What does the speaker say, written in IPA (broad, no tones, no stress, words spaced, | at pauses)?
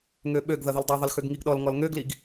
ŋøɓøɡ ðʌðɪldˤø ðˤɪlxøɡŋiɡɗɔl ŋɔlŋøɡliɡ